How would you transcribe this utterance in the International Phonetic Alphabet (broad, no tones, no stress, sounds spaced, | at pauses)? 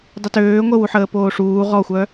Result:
dˤ ə t øː ŋʷ ə w u ħ əː p oː ʂ uː ʁ ɔ xʷ œ